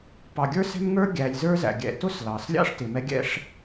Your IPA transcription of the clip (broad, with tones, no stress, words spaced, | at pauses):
pɑ˨ɡʲə˞˥sɛ̤˥mŋə˞˥ ɡʲæ˨lʲzə˞˥ zæ̰˩ɡʲɛ̰˨tʊ˥s lɑ˩slʲɑ̰˥ʂ tɪ˩mɛ˦ɡʲɛ̰˦ʂ